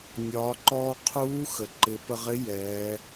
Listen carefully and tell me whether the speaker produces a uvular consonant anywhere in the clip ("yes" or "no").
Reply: yes